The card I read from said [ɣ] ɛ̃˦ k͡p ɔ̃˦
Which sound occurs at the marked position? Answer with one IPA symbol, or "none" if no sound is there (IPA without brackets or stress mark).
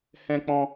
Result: h